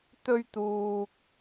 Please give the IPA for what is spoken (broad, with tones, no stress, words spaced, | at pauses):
t̪ɵ˥ɥ t̪uː˧k̚